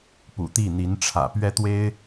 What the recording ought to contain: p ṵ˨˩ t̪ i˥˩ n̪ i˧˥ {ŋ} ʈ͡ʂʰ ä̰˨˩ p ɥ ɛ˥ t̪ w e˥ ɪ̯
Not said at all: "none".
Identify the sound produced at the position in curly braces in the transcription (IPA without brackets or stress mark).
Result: n